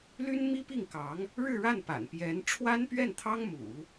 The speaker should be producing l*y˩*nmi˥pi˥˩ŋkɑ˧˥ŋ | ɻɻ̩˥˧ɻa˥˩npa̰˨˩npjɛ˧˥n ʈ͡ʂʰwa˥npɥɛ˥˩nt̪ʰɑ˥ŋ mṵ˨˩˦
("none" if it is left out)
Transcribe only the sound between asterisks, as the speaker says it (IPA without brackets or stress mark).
y˥